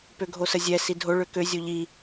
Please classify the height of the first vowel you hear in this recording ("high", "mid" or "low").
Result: mid